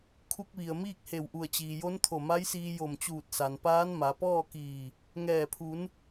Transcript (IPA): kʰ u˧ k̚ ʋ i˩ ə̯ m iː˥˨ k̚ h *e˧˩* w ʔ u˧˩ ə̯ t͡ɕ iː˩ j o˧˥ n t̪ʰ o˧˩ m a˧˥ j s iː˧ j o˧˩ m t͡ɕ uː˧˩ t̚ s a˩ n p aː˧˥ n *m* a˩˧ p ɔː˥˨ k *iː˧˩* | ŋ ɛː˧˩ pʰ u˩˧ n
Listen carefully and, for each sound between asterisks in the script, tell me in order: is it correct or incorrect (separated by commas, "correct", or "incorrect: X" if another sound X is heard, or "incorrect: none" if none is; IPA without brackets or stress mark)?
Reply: correct, correct, correct